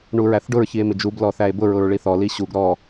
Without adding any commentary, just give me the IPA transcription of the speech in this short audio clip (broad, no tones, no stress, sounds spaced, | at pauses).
ɳ u ɹ æ θ ɖ ʊ ɹ ç i e̯ m ɪ d͡ʒ u b l ɔ θ æ e̯ b ʊ ɹ ʊ ɹ ɭ i θ ɔ l i ɕ u ɡ ɾ ɔ